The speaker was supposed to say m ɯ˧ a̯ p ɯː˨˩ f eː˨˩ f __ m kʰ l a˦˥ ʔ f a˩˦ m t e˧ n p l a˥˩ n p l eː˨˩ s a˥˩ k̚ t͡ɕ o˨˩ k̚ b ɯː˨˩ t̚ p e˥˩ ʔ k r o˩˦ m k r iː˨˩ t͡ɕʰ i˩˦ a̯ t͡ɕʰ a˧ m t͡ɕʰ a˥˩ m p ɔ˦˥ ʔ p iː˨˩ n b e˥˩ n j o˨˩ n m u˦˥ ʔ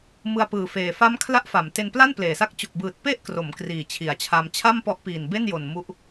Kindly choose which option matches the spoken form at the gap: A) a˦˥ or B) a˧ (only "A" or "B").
A